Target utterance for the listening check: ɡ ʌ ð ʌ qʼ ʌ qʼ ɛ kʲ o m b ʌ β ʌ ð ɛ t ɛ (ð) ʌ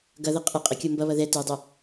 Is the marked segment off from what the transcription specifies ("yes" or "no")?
yes